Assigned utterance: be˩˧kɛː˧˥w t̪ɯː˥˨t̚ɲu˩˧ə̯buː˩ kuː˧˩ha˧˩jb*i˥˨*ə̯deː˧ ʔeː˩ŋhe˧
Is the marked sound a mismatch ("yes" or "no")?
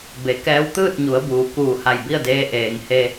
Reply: no